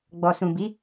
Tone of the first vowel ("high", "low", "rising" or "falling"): low